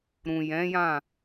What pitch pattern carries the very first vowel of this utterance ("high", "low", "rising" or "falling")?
low